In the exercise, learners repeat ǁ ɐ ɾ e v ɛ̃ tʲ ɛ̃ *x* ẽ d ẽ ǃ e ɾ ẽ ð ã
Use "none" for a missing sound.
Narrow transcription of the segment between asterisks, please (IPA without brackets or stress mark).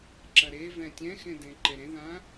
x